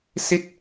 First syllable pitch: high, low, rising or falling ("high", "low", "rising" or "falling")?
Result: falling